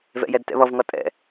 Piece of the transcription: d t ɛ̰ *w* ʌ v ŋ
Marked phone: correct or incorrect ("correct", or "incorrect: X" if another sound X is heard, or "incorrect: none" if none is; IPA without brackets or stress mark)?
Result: incorrect: β